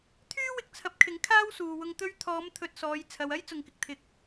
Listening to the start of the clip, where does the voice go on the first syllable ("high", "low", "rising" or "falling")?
high